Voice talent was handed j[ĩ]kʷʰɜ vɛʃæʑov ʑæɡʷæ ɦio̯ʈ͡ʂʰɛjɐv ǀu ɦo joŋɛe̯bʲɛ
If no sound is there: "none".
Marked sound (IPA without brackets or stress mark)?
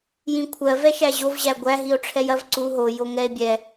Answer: ĩ